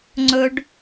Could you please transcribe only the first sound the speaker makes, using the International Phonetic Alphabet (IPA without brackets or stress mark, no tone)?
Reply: ŋ͡ǀ